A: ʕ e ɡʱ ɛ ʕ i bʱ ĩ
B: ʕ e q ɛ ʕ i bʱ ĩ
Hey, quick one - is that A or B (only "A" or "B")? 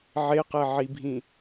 B